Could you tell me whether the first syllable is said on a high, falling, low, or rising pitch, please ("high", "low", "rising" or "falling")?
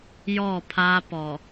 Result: falling